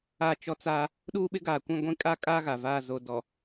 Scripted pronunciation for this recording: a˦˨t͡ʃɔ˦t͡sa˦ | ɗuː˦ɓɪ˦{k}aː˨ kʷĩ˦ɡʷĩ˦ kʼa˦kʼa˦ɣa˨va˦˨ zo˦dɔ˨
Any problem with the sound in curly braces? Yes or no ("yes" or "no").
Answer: yes